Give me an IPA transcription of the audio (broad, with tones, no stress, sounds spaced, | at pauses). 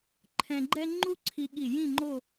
ǃʰ ɛ̃˧ ɡ͡ǃ ɛ˥ ŋ͡ǃ u˥ ǀʰ i˧ ɠ i˧˩ j ĩ˥˧ ŋ͡ǃ o˥˧